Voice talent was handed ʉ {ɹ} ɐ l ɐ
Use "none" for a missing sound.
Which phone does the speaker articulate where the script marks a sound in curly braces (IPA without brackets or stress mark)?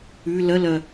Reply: l